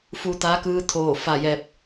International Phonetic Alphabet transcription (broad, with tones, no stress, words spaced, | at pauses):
fu˧ t̪aː˧˥kɯː˧˥ t̪ʰoː˧˩ fa˧˩jɛː˧˩p̚